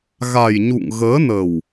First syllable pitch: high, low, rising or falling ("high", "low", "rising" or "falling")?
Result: low